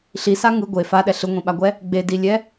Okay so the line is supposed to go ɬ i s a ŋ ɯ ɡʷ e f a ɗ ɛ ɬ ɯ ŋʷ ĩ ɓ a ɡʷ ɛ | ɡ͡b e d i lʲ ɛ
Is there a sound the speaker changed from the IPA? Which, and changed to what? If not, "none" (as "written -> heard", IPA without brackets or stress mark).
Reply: none